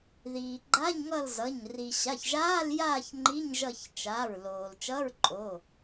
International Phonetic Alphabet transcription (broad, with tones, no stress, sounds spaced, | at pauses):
ð iː˩ ɡ͡ǃ a˧˥˧ ɲ ŋ ʌ˦˨ l z ʌ˩˧˩ ɲ r i˩ ɕ a˩˧˩ ç ʒ aː˧˥˧ l j aː˦˨ ç ŋ͡ǃ i˧˥˧ ɲ ʒ ʌ˦˨ ç t͡ʃ aː˩˧˩ ɹ l oː˩ l t͡ʃ ʌ˧˥˧ ɹ ǃʼ o˩˧˩